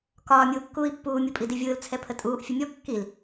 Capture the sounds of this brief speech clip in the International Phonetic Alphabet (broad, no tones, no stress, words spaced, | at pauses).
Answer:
kɒː mʲuːkːuːi̯pːuː mʲupʼidivʲɯːl t͡sʰɛpʰətʼuːʔ fʲəmʲɔ kːil